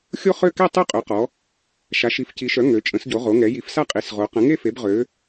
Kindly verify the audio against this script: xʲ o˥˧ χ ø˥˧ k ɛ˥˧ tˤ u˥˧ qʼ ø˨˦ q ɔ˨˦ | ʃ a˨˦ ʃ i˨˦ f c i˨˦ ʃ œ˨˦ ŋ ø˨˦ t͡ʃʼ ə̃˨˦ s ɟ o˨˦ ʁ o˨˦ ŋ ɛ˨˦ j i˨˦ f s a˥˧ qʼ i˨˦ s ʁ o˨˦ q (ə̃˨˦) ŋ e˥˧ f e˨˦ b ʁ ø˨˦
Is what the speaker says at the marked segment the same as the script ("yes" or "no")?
yes